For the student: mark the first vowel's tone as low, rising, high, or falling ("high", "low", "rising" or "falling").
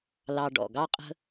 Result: low